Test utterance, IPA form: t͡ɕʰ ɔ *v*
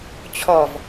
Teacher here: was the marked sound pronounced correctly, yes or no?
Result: yes